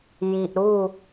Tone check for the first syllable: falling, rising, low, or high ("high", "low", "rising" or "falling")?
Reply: low